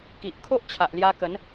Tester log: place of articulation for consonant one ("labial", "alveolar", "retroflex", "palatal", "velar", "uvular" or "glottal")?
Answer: velar